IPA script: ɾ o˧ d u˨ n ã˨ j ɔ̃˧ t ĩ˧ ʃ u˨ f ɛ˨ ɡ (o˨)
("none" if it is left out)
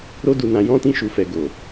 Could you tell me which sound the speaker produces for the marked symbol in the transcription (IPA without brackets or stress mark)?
o˨